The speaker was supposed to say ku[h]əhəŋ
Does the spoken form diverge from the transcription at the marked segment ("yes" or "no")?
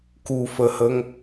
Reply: yes